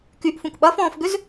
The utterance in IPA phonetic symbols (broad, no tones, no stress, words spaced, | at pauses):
kyʔfũk ɓɐfɔ̃ːfɡʏz